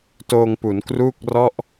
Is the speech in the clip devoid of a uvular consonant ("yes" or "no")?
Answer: yes